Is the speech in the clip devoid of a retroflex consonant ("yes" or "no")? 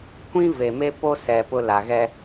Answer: yes